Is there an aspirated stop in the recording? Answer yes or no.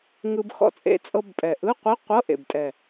no